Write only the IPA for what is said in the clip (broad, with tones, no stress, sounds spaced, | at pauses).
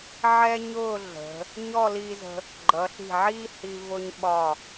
ʕ ɛ˥ ɲ ʊː˥˧ ɮ ə̤˩˧ | ɲ ɔ˥˧ l iː˧ z ə̤˧ | ɡ͡ǃ ʌ˩˧ ɬ i̤˧˩ ʕ iː˥ h i˧ v ʊ˧ ɲ ɓ ɒ˧˩